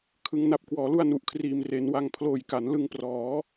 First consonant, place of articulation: velar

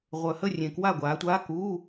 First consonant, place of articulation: uvular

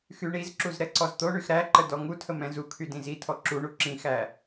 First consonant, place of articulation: velar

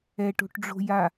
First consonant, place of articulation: retroflex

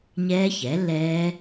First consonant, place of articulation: palatal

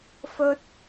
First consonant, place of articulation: labial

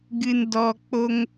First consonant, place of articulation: velar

